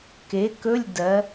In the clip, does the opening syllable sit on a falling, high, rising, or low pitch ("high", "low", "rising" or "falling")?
rising